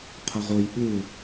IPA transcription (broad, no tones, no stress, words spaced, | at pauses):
qʰʌʁoj ɓɯ